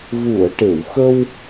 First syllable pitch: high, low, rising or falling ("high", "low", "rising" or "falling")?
low